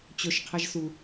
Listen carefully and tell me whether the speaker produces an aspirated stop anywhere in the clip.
yes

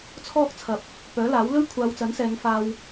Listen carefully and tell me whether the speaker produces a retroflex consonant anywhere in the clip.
no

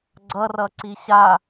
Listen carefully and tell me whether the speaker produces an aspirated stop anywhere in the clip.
no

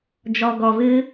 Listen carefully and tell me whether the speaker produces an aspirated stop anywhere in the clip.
no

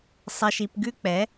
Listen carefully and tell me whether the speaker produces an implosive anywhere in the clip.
no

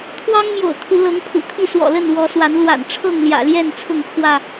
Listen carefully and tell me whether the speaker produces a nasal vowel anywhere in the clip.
no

